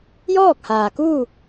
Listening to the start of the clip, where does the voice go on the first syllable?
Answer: falling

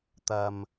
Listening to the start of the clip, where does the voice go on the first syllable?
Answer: high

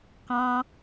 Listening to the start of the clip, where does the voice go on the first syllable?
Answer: high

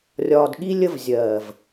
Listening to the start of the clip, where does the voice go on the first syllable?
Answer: low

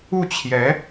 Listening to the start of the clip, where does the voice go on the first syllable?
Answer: falling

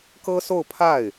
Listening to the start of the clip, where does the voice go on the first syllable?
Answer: high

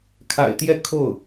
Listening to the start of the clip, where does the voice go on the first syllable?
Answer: low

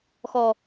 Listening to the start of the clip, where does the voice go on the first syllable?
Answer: low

